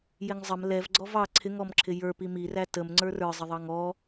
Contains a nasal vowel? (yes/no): no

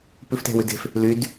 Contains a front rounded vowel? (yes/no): yes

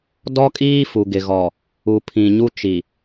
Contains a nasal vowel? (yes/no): yes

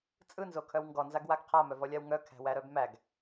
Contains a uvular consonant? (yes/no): yes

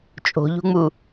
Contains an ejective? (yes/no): yes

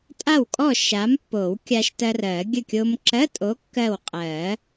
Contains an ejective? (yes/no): yes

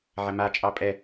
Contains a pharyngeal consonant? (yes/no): yes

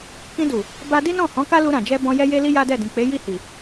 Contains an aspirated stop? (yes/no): no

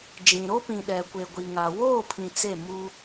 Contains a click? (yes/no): no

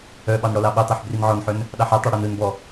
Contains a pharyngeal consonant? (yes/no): yes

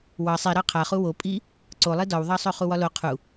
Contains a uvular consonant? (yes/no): yes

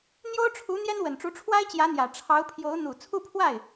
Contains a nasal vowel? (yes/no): no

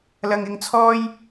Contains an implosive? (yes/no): no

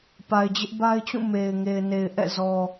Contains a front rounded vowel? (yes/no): no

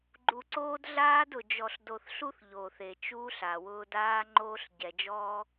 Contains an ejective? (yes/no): no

